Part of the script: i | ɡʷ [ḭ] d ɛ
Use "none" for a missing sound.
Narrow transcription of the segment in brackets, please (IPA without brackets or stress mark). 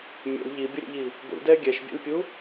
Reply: ḭ